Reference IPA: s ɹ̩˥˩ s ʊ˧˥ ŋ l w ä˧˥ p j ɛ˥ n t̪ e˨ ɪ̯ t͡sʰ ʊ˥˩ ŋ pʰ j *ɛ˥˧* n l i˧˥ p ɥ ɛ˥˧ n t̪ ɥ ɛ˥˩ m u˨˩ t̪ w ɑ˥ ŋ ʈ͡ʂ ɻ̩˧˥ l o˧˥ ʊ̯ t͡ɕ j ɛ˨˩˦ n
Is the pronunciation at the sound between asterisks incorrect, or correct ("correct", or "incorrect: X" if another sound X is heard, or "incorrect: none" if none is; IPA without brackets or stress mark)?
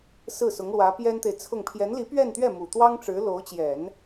incorrect: ɛ˧˥